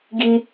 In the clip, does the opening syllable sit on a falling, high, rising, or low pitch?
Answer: high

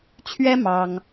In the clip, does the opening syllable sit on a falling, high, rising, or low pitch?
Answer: high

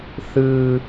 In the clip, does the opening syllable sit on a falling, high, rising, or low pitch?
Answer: high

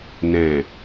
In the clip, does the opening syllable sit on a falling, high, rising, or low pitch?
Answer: low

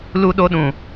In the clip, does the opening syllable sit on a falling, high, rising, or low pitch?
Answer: high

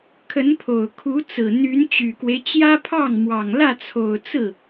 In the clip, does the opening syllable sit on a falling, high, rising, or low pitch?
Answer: rising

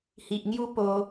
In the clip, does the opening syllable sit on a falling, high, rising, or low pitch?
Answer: low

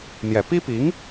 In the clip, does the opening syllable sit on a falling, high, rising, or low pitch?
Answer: low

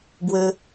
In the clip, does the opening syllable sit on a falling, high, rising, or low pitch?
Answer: high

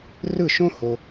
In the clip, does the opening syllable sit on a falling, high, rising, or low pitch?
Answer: falling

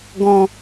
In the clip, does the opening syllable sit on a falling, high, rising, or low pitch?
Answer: low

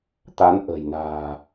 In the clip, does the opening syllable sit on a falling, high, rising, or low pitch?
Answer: rising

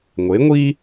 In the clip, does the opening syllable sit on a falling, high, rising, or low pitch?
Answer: rising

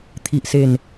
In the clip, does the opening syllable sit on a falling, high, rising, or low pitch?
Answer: low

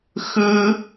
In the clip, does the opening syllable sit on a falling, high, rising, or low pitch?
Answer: high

